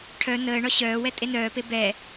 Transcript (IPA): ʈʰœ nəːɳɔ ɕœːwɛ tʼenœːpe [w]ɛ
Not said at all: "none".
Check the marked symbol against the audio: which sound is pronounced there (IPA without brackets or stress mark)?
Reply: b